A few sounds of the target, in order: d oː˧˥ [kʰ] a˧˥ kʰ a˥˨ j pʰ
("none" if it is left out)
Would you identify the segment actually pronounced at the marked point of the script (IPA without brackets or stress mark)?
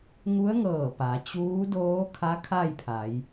kʰ